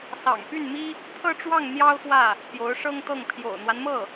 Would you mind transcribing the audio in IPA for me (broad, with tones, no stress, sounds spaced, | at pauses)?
s ɑ̰˨˩ ŋ p y˥˩ n m i˥ | t̪ʰ ɤ˥˧ ʈ͡ʂ w ɑ˥˩ ŋ n̪ j ɑ˥ ʊ̯ x w ä˥˩ | p j o˧˥ ʊ̯ ʂ ɤ˥ ŋ t̪ ɤ˥˩ ŋ pʰ j o̰˨˩ ʊ̯ n̪ w a˦ n m ɤ˥˩